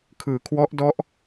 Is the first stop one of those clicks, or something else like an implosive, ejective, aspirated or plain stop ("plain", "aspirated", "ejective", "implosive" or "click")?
aspirated